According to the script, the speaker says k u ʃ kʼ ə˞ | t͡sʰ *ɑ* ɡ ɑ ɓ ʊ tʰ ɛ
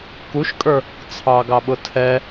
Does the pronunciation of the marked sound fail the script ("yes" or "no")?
no